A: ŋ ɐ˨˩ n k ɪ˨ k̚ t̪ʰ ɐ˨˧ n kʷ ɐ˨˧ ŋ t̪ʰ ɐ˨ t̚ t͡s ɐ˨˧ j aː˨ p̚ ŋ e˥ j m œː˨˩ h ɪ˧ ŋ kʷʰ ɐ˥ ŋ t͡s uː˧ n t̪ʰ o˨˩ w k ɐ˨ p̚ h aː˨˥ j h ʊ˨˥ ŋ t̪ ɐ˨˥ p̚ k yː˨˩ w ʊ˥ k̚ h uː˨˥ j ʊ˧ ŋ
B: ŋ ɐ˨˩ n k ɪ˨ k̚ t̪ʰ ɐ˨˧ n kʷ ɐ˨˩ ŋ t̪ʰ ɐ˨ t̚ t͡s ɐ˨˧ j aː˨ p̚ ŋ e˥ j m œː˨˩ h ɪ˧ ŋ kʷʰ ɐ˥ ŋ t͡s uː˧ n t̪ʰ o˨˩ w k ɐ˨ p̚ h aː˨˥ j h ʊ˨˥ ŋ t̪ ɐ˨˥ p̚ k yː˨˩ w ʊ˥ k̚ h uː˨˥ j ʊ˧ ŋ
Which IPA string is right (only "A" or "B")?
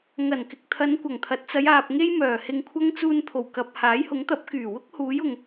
B